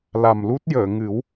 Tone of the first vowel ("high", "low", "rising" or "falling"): low